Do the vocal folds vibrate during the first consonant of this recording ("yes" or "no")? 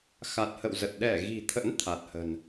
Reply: no